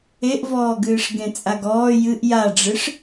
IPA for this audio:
e ʔ v ɔː ɡ ɨː ʂ ɡ ẽ t͡sʼ a ɡ ɔː j ɨ ʔ j a ɖ͡ʐ ɨ ʂ

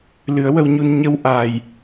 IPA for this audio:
l ɨ˨˩˦ ə̯ w ə˧ w ɲ u˧ n ɲ ə˧ w ʔ a˨˩ j

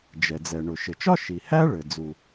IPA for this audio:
d͡ʒ ɛ˩ d͡z ɛ˩ ɳ ʊ˩ ʃ ɘ˩ t͡ʃ ɒ˥ ʃ i˩ h æ˥ ɭ ɘ˩ d͡z u˩

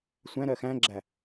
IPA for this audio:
sʷ æ̃ ɾ ɜ x æ̃ ɡ͡ǁ æ

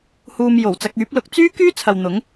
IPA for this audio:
h uː˧ m j o˨˩ w t͡s ɐ˧ k̚ yː˨˥ p̚ l ʊ˨˥ k̚ t͡s yː˥ k yː˥ t͡sʰ ɐ˨ w n̪ ʊ˨˥ ŋ

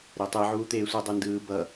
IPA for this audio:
ɾ e tˤ i ʕ uː t̪ eː sʷ e dˤ ɯ n d ɯː b ʌ

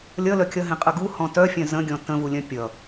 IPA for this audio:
lʲ ʌ l œ kʲ ʌ ɦ ẽ qʼ ə ɡ u h ɔ̃ t œ fʲ œ̃ z ə̃ ɡʲ ɔ̃ t ə̃ v u lʲ œ̃ pʲ ʌ

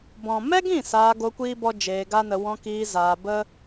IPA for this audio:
b ɔ̃˨ m ɛ˦ ɡ ĩ˦˨ s aː˧ ɡ o˧ kʷ iː˦ b ɔ˦ d͡ʒ eː˧ ɡ a˦ n ə˧ w ɔ̃˧ k iː˧ z aː˧ b ə˦

